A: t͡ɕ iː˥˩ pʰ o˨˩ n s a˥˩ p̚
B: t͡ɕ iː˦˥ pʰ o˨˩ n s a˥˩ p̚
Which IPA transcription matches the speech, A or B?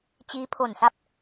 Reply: B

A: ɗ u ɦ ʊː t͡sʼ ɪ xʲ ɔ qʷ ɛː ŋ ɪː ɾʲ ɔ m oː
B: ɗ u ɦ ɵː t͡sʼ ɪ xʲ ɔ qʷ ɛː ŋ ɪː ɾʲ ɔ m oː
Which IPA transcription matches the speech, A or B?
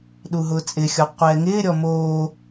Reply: A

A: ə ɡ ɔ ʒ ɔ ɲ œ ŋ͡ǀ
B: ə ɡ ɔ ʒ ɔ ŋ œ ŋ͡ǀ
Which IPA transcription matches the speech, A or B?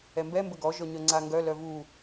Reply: A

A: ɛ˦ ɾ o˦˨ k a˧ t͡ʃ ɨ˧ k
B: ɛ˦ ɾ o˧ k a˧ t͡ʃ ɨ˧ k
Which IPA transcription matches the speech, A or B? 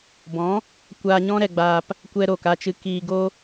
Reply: A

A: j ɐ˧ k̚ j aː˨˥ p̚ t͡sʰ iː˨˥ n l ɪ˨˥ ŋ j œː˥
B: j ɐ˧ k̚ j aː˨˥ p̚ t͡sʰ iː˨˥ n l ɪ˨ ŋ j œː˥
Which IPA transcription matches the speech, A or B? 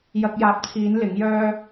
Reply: A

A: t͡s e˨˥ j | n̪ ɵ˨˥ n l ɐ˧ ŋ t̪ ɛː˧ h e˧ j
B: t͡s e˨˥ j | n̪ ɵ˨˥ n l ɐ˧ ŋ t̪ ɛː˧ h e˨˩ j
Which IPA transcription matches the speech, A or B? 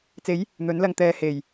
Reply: B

